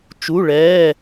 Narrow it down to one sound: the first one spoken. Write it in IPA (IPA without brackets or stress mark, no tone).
t͡ʃ